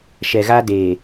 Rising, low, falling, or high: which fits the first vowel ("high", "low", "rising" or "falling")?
low